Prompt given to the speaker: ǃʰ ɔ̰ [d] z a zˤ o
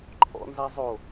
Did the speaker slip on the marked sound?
yes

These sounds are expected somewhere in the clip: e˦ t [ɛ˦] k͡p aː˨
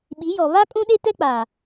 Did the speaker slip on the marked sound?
no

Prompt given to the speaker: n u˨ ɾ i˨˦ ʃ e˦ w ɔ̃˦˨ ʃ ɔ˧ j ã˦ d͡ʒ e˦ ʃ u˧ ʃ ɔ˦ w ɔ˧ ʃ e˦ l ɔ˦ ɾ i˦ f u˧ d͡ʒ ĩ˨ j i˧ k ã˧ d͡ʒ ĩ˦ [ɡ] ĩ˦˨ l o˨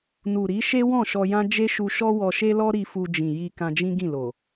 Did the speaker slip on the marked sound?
no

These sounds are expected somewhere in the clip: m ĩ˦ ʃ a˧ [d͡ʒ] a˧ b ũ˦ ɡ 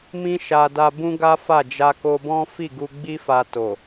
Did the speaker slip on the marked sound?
yes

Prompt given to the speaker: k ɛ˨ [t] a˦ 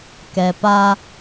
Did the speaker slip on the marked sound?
yes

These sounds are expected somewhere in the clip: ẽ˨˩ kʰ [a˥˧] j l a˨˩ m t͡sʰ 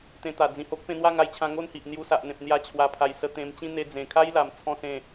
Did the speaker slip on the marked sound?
yes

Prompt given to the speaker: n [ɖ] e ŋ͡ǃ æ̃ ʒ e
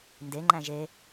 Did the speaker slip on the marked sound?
yes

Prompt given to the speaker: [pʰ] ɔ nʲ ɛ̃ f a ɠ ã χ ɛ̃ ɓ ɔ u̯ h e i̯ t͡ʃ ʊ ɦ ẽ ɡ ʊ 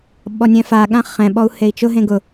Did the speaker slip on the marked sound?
yes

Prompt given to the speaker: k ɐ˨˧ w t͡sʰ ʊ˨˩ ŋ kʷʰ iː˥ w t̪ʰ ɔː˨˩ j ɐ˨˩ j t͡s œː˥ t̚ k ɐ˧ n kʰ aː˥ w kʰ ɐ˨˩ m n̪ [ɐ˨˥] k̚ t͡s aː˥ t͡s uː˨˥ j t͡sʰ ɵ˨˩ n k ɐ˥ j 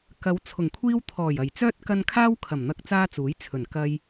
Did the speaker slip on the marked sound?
yes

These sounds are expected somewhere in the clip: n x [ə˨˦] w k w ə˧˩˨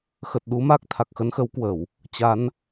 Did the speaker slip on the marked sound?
no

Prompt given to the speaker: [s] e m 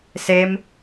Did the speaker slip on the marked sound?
no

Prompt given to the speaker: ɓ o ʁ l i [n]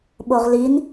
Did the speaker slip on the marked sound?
no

